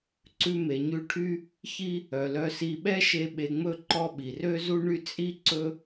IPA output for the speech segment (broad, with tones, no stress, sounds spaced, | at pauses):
ǀ ʉ˧ m e˩ ɲ ʉ˧ ʈʰ y˥ | ç i˥ | œ˩ l œ˧ s i˧ ɓ ɛ˥ ʃ e˧ ɓ e˧ ŋ͡m ɵ˥ ǃ ɔ˥ ɓ i˩ r ø˥ z u˥ ɳ y˥ t͡sʼ i˥ ǀ ɵ˥